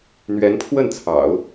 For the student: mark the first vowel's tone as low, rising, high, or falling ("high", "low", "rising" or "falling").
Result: rising